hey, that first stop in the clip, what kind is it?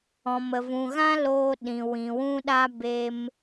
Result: implosive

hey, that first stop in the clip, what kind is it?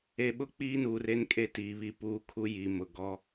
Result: implosive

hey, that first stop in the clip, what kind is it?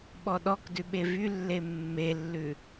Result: implosive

